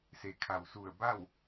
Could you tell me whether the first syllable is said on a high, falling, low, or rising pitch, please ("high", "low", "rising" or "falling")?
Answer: low